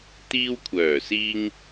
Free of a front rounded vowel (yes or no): no